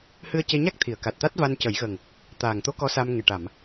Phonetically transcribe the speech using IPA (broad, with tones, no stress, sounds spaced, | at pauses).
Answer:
h ɨ˧ ə̯ c e˧ ɲ a˦˥ k̚ t̪ʰ i˨˩˨ ə̯ k a˨˩ t̚ t̪ a˦˥ t̚ v a˧ n c ə˨˩˦ j ɣ ə˨˩ ŋ | t̪ aː˨˩ ŋ t̪ o˧˥ k ɔ˧˥ s a˧ m ŋ e˨˩ ʈ a˨˩˨ m